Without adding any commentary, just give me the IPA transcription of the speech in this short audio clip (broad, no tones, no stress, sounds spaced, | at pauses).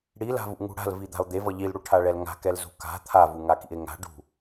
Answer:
ɽ i l a̤ v ṵ ŋ ṳ ɽ a̤ l v i d̪ a̤ o̯ d̪ e v ʌ ʎ i l ɽ u ʈʰ a ɭ ɛ l ŋ a̤ k ɛ l z ṳ k a̤ t̪ʰ a v u ŋ a k ḭ e̯ ŋ a̤ ɖ ṳ